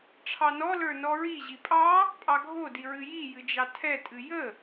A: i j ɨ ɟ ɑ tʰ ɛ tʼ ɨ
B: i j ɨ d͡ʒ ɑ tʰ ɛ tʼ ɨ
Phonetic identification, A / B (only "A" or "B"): B